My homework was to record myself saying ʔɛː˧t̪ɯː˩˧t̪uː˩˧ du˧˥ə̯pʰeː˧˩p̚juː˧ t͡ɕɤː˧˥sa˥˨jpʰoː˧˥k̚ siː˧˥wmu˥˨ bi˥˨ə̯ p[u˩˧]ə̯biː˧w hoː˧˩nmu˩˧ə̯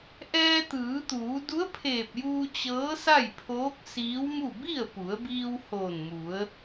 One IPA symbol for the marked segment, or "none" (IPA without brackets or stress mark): u˩˧